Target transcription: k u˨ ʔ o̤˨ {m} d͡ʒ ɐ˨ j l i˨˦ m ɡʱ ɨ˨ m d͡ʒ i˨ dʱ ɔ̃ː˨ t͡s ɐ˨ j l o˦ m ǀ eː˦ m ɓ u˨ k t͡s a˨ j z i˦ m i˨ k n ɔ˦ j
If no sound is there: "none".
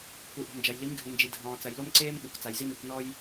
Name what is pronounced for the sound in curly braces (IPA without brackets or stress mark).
m